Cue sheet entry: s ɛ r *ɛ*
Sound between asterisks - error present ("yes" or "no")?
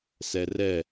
no